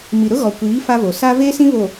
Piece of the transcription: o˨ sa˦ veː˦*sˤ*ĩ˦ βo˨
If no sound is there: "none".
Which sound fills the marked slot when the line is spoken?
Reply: s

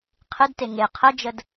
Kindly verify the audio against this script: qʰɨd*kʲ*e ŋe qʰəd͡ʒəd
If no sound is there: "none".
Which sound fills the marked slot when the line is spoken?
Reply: t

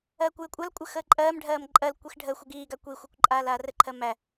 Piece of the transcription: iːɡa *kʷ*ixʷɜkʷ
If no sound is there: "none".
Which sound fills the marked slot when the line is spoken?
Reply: kʷ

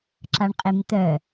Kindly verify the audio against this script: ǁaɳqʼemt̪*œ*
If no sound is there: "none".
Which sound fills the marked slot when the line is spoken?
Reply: œ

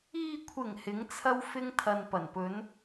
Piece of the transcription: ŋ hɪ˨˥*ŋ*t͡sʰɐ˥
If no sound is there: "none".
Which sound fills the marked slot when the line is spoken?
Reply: ŋ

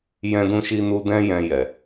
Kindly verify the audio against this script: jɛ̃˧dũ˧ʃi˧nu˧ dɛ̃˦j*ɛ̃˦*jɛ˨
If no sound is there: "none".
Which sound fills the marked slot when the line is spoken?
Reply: ɛ̃˧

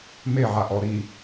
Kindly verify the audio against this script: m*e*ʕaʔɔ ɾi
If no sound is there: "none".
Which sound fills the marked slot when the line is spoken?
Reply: e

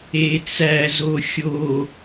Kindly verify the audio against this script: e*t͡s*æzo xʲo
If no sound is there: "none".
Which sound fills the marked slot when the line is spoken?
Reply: t͡s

